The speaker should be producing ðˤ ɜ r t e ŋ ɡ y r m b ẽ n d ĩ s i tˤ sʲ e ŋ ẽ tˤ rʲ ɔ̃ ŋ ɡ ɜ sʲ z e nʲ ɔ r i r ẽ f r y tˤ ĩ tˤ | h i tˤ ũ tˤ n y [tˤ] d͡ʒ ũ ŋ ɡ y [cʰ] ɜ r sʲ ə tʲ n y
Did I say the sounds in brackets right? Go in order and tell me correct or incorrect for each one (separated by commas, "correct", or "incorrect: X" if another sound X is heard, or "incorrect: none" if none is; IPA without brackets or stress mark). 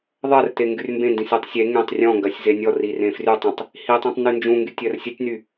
incorrect: n, incorrect: tʲ